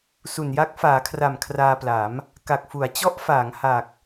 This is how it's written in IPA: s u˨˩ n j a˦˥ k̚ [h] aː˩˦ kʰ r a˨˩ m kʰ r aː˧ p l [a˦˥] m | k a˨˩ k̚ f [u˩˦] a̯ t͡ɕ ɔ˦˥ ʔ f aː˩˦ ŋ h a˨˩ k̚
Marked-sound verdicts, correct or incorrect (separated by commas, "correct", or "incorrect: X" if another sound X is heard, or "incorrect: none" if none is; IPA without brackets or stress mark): incorrect: f, incorrect: a˩˦, correct